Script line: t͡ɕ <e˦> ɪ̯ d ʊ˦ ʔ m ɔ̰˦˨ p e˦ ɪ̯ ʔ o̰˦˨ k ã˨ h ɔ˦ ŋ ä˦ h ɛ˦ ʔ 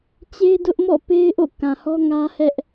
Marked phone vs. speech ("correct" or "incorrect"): correct